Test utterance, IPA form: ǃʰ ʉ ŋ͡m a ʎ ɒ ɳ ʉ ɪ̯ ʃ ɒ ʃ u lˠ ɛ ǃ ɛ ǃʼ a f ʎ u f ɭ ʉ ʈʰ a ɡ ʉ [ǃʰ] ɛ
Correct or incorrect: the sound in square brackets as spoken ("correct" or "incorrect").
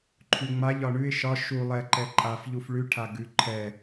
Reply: correct